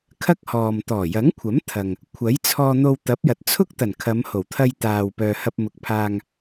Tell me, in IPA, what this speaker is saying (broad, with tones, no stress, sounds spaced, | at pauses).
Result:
kʰ ɐ˥ k̚ h ɔː˨ m t̪ ɔː˨˩ j ɐ˨˥ ŋ kʷʰ ɐ˨˥ m t̪ʰ ɐ˨ ŋ | kʷʰ ɐ˨˥ j t͡sʰ ɔː˧ n̪ o˧ w t̪ ɐ˨˥ p̚ j ɐ˨ t̚ t͡sʰ ʊ˥ k̚ t̪ ɐ˨˩ n kʰ ɐ˨˧ m h o˨˩ w t̪ʰ ɐ˧ j t̪ aː˨ w p œː˨ h ɐ˧ p̚ m ʊ˨˥ k̚ pʰ aː˧ ŋ